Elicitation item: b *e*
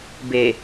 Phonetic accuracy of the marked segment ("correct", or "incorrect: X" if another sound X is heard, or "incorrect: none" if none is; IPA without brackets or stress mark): correct